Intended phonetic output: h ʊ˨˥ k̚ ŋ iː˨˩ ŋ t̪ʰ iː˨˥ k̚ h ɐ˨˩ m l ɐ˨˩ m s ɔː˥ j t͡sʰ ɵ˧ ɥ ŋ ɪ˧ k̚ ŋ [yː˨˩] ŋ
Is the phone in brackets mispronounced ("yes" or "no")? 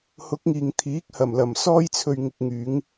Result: yes